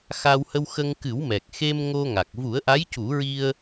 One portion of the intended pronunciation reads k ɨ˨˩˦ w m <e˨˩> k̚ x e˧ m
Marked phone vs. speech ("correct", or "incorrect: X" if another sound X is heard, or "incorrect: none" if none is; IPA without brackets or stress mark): incorrect: ɛ˨˩